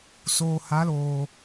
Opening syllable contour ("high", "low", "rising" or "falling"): low